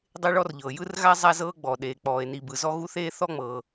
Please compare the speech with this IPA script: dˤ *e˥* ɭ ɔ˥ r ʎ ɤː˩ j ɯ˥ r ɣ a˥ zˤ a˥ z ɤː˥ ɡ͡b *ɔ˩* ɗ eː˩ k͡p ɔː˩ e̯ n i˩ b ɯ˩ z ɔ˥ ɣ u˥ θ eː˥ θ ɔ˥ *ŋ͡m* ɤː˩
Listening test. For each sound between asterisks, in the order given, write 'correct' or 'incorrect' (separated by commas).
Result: correct, correct, correct